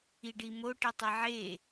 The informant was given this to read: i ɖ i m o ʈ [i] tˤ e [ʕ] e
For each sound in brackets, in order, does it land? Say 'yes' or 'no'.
yes, yes

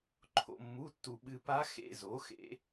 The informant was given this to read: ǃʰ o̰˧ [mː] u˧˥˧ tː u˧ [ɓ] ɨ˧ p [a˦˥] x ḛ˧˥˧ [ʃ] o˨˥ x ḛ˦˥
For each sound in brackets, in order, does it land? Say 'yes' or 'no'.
yes, yes, yes, no

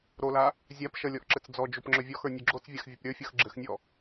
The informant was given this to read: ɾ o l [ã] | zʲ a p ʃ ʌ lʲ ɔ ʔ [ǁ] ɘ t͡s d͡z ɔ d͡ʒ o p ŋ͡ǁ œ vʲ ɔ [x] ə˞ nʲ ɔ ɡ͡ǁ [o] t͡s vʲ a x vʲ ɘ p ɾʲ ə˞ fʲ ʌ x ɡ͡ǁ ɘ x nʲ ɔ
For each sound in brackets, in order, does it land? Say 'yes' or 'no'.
no, yes, yes, yes

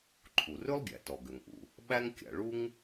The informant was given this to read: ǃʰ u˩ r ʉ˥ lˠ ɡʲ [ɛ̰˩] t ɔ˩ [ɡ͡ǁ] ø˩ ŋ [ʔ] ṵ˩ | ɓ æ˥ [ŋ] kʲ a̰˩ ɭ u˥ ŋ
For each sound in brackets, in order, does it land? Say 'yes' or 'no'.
no, no, yes, yes

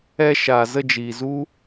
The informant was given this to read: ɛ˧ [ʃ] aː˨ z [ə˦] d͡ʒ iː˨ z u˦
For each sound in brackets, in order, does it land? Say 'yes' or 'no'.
yes, no

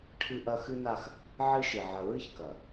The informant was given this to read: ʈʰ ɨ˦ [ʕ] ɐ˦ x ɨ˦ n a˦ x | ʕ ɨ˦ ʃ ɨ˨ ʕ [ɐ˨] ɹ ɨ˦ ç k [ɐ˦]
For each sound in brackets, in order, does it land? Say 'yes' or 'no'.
no, yes, no

